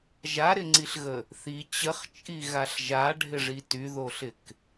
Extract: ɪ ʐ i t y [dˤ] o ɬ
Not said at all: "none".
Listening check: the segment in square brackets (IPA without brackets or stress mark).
ð